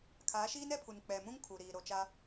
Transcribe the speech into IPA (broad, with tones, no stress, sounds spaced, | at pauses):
kʰ aː˨˦ ʃ iː˦ n ɛ˦ pʰ u˨ n k͡p ɛ˨ m ũ˦ ŋ kʰ u˨ ɾ iː˨ ɾ o˨ t͡ʃ a˦